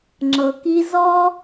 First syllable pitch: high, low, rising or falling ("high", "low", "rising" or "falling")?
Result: low